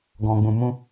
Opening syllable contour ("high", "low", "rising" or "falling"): low